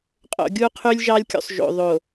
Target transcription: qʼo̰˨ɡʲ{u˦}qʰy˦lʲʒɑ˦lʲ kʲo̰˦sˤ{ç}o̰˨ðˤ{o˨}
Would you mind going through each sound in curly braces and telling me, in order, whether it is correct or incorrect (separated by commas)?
correct, incorrect, correct